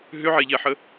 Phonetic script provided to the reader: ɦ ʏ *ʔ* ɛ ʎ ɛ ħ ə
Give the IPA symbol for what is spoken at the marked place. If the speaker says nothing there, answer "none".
ʕ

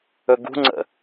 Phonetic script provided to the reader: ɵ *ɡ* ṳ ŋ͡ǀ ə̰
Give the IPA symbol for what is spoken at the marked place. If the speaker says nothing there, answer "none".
ɡ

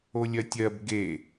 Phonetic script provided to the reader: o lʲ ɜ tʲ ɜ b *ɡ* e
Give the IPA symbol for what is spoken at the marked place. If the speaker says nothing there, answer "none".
ɡ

